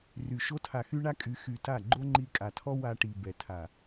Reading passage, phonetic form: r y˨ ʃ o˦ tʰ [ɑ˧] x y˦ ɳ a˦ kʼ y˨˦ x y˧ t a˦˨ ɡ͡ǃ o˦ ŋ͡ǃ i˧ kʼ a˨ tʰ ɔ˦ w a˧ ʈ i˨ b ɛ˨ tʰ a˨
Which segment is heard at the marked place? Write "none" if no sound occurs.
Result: a˧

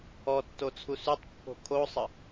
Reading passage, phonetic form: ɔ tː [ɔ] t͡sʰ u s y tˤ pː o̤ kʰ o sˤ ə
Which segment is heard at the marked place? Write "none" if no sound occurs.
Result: o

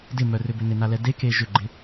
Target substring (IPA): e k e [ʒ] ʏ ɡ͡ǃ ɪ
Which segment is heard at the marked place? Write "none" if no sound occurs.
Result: ʒ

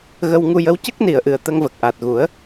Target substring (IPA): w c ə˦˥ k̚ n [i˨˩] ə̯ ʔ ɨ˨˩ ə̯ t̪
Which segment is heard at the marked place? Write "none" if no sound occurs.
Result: i˨˩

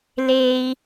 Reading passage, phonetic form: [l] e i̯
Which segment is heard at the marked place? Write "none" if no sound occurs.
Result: l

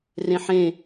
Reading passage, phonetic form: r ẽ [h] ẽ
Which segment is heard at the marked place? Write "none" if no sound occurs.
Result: ħ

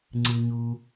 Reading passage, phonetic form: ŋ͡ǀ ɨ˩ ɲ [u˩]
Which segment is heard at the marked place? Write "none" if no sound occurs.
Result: u˩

